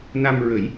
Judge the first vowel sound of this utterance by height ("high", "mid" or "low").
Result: low